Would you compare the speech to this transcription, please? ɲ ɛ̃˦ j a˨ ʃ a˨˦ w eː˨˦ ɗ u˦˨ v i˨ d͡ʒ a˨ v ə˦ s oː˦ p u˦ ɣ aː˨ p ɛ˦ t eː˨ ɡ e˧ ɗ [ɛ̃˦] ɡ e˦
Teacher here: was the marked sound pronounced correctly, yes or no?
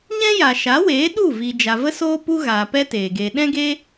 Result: yes